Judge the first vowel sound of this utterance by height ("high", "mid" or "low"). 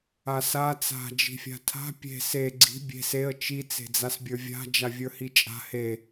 low